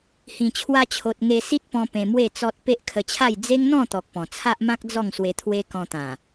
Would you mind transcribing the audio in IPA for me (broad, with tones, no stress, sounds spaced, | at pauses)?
h ĩ˨˩ t͡ɕʰ w a˧ t͡ɕʰ o˨ t̚ ŋ e˧ s i˦ t̚ p ɔ̃˧ p ẽ˧ m w e˥˧ t͡s ɔ˦ t̚ p e˦ ʔ kʰ ə˧ t͡ɕʰ a˥˧ j d͡z e˦ ŋ n̪ ɔ̃˥˧ t̪ ɔ˨ k̚ p ɔ̃˨˩ t͡sʰ a˦ ʔ m ã˦ k̚ d͡z ɔ˥˧ ŋ s w e˧ t̪ʰ w e˦ k ɔ̃˧ t̪ ã˨˩